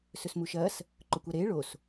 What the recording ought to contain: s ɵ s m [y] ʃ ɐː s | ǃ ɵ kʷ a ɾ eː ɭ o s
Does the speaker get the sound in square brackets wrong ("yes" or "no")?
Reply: yes